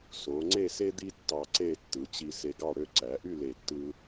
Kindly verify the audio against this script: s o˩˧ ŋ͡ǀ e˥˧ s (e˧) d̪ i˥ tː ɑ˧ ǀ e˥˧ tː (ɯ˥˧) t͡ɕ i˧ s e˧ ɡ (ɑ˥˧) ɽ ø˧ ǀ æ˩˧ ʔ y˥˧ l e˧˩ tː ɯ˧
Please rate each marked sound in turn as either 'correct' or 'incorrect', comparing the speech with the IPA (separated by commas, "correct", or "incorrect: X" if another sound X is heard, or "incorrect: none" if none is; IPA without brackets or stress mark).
incorrect: e˥, incorrect: ɯ˩˧, correct